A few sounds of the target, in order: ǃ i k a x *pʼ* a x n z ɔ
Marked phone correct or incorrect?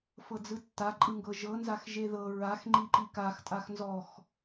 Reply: incorrect: tʼ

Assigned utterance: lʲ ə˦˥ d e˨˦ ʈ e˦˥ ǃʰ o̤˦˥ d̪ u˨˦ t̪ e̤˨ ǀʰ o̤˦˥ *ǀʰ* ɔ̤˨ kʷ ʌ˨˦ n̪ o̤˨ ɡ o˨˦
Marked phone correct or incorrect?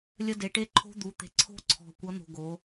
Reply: correct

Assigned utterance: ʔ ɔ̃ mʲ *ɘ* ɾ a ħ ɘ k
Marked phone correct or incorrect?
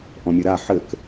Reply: correct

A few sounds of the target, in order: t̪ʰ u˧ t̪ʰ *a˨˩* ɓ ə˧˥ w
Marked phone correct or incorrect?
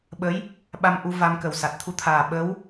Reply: incorrect: aː˨˩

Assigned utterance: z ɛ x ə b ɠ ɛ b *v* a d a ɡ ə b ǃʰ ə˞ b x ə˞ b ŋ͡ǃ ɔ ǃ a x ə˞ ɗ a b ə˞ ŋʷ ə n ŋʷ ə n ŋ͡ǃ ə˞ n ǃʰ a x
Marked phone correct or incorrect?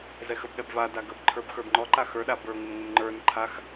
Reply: correct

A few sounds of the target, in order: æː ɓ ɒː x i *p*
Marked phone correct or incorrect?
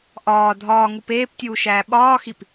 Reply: correct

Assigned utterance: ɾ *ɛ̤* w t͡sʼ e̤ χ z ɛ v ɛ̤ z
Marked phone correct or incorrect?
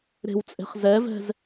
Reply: incorrect: e̤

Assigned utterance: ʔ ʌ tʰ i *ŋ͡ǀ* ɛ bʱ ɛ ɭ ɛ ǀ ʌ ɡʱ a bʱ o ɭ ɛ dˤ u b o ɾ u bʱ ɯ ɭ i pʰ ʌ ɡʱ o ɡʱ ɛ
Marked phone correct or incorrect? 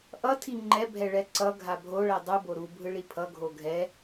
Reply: incorrect: ŋ͡ǃ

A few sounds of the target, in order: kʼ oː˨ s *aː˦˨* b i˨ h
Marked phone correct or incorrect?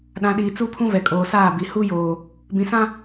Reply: correct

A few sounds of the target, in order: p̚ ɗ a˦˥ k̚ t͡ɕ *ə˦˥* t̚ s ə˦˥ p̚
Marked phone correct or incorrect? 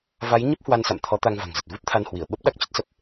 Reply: correct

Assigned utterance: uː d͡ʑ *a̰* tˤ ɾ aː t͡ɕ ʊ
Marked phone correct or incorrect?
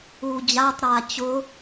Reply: incorrect: a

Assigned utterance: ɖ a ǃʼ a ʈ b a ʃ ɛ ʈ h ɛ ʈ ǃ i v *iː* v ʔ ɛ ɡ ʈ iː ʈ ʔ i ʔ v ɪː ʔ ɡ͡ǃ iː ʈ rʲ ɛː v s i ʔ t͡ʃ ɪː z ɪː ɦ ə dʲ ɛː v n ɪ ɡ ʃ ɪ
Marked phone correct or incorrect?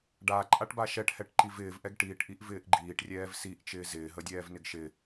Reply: incorrect: ɪː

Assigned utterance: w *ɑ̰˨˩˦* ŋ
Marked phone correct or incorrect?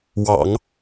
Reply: correct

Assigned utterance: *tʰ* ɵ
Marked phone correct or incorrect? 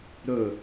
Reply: incorrect: ɾ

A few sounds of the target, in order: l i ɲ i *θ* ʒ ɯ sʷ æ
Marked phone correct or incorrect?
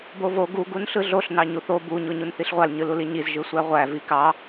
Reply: incorrect: z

